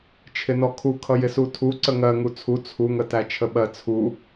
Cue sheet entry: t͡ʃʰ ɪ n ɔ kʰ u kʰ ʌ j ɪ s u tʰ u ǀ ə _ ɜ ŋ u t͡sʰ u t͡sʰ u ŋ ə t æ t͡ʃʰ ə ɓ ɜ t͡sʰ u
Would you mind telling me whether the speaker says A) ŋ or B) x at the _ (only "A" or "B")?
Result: A